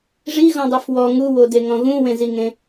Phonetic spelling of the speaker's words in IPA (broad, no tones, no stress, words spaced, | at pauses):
ʐiɣɔ̃dˤuf wɔ ŋuwodeŋɔ̃ ɣũwẽziŋẽ